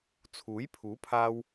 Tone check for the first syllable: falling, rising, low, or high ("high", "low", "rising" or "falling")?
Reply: rising